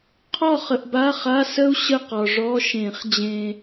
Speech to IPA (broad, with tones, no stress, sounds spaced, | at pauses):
qʰ ɔ˥˨ χ ə˨ ʔ b a˧˥˧ χ a˧˥˧ s ə˥ u̯ ɕ ə˥˨ q ɒ˨ ʐ ɔ˧˥˧ ʃ ẽ˨˩˦ χ d͡ʑ ẽ˨